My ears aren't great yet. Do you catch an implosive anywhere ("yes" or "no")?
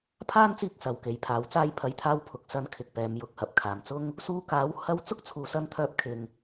no